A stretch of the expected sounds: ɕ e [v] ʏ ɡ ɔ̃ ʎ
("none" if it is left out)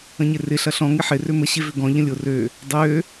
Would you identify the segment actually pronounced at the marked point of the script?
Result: v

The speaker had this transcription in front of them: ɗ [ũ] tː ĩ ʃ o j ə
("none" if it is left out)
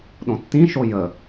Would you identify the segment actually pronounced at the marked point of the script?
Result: õ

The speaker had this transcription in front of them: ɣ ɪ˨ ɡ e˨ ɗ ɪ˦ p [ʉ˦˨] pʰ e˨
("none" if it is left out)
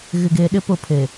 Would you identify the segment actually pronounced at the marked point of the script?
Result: ʊ˦˨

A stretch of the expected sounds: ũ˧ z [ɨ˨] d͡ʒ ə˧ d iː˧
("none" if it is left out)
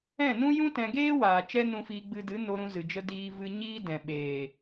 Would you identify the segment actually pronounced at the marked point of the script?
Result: ɨ˨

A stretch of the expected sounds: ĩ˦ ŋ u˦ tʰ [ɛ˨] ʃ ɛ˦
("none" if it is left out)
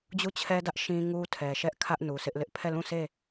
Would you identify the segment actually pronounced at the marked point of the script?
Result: ɛ˨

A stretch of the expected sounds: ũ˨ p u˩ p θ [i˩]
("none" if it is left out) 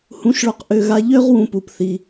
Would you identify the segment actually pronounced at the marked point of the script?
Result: i˩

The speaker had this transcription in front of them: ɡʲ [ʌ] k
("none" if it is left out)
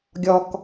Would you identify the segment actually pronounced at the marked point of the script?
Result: ɔ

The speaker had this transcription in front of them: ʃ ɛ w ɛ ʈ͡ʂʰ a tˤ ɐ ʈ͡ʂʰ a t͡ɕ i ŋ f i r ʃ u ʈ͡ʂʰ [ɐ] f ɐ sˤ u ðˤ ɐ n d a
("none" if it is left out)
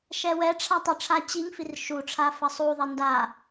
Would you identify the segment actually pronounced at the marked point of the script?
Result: a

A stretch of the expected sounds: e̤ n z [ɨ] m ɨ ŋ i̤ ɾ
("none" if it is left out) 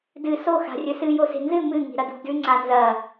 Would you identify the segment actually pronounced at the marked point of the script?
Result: ɨ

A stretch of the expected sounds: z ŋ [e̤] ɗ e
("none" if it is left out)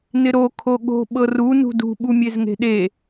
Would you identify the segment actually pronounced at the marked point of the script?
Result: e̤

